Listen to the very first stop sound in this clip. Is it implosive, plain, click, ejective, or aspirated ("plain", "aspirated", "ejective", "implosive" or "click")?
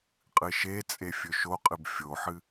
ejective